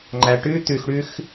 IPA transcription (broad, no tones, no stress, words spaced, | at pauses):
ŋ͡ǃæʈʉ t̪ʉx ɽʉx